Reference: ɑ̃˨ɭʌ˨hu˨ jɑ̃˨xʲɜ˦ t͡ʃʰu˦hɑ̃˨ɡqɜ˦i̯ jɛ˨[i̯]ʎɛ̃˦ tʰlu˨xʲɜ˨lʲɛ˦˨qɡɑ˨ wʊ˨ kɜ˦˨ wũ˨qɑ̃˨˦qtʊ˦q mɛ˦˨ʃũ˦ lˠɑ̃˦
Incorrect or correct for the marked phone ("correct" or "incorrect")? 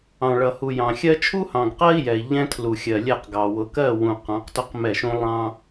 correct